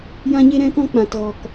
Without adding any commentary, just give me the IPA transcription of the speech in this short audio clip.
jã˧ɲe˧ɾɛ̃˧kɔ̃˧ k͡pã˨tɣɔ˨k

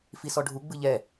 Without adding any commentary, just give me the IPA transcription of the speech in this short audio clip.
fisɔɖʱu ɡ͡bɯʎɛ

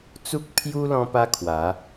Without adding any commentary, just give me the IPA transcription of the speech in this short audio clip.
t͡su˦k̚pʰju˦ lɔ̃˦pa˦kʰwa˨˦

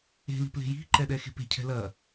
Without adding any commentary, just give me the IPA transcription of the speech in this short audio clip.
e̤li̤ ple̤ji̤ǃɛ ɗɛxe̤pe̤cʰɛ̤ lɐ

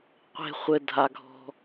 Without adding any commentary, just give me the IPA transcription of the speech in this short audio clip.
qʷe̤ χʷɘdʱaɡʱɔ̤

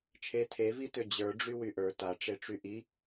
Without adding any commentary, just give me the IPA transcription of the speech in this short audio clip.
t͡ʃʰe tʰevitø d͡ʑə˞ɖ͡ʐy wyʔə˞ taʈ͡ʂeʈ͡ʂy ʔi

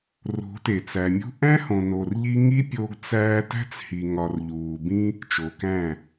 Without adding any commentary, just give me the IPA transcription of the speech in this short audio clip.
ro̤˨˦te˨t͡sæ˨ mʲṳ˦ ʔæ̃˦hõ˨ no˨rʎi˧ ŋi˦pʲo˧ɡt͡sæː˧ tæ̤˦t͡shi˨ ŋɒ˨rʎuː˨bĩ˦ | t͡ʃo˨kæ̃˦˨

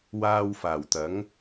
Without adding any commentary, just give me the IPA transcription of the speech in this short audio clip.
waː˧w faː˨˩wt̪ɐ˨˥ŋ

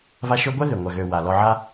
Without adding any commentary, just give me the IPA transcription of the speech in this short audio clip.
va˦ ʃø˦ɡʷɛ˥ðʏ˩ ŋʷa˨ɣø˨ wa˩ lɔ˨ʕa˦

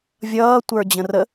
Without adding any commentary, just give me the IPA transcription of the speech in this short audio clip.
vʲʌːtʷə˞ d͡ʑə̃rə

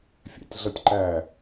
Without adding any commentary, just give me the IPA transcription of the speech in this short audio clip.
fʲæ̰tʲɮʌtʲǃæ

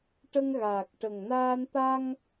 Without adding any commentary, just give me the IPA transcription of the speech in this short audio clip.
ʈə˧ŋɣaː˨˩k̚ ʈə˨˩ŋnaː˧n t̪a˧ŋ

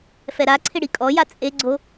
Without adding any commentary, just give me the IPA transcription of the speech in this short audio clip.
fɛɾaǀʰɪ ɽikʼɔja t͡sʼeɡ͡ǀo

